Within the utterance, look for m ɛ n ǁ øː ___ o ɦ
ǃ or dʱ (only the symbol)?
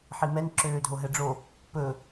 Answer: dʱ